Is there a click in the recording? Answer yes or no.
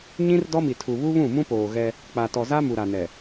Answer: no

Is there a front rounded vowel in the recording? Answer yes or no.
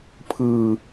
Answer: no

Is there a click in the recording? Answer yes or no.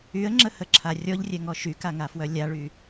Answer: yes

